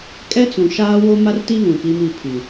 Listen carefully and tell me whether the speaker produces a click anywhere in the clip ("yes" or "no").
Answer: no